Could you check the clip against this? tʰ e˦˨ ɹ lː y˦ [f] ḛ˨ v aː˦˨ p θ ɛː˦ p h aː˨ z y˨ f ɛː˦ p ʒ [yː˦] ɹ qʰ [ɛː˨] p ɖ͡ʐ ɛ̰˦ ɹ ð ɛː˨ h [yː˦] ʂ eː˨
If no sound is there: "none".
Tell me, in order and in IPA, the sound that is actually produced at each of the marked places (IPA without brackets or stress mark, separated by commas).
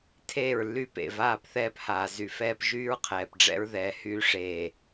p, yː˦, ɛː˨, yː˦